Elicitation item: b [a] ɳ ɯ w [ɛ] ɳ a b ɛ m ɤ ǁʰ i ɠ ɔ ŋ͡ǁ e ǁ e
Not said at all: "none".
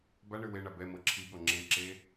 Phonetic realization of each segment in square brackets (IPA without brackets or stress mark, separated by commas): a, e